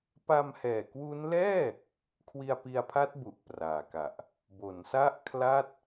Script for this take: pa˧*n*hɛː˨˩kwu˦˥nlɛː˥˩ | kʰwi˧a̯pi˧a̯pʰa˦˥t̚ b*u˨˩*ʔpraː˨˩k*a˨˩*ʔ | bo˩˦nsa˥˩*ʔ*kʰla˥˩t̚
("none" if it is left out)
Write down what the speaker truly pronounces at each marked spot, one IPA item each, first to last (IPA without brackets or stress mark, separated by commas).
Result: m, u˨˩, a˨˩, ʔ